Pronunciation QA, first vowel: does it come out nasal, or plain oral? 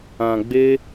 nasal